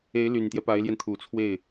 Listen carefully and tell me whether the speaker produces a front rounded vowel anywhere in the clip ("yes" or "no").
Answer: yes